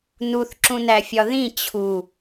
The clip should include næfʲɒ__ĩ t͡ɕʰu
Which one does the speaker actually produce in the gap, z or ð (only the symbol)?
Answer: ð